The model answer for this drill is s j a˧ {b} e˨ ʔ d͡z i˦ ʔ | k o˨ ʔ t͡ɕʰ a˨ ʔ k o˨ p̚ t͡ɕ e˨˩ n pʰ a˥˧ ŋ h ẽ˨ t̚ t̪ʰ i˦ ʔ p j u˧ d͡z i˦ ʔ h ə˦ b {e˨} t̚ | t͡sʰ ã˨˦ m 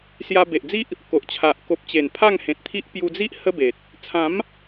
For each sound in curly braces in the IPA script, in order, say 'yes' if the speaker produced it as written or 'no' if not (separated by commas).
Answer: yes, yes